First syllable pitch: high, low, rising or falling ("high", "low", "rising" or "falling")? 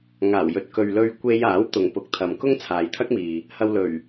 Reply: low